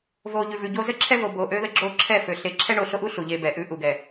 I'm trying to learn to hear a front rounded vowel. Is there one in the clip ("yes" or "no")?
yes